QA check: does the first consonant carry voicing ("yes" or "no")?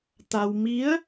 no